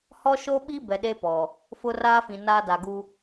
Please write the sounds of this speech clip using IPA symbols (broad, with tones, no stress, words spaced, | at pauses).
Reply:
hɔ˦ʃo˦ɓi˦ bɛ˨ɗe˦ pɔ˨ | fʊ˦raː˦fĩ˨naː˦ da˨ɡu˦